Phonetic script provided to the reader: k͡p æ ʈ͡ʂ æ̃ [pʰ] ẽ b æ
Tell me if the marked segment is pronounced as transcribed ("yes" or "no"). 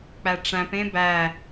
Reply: no